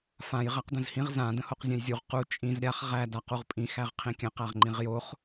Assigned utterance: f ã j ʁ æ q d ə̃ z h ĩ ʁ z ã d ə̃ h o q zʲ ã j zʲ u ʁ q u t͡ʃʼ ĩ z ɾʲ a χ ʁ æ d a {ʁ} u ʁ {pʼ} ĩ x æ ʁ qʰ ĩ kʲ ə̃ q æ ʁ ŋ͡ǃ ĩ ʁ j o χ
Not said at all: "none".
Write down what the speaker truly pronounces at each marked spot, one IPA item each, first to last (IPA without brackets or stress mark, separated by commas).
q, pʼ